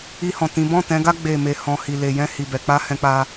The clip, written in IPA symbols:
i˧ h ɔ̃˨ t ĩ˨˦ b ɔ̃˦˨ t ɛ̃˨˦ ɡ a˦ ɡ͡b e˦˨ m e˧ h ɔ̃˨ h i˨ l e˨ j ɛ̃˧ h i˨ b ɛ˨ k͡p a˧ h ɛ̃˦ k͡p a˦

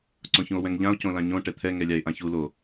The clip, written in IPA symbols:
ǀ õ ç ũ o̯ w ɛ̃ ŋ ʎ ã o̯ c õ l ã ɲ õ ʈ ɛ t̪ʰ ɛ ŋ ɛ lʲ a e̯ ʔ ã ç u l o

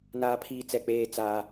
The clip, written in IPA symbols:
n aː˦ pʰ iː˦ t͡s ɛ˦˨ k͡p eː˦ t͡s aː˦

